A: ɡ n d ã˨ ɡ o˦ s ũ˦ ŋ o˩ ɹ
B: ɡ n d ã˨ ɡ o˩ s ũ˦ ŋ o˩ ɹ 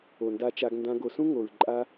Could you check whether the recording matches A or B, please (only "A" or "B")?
B